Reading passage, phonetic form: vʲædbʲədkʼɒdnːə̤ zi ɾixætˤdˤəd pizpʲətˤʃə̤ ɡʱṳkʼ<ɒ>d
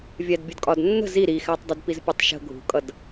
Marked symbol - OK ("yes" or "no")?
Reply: no